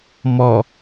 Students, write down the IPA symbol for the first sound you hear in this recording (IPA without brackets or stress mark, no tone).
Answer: m